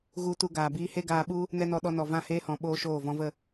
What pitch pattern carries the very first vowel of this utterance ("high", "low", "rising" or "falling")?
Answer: high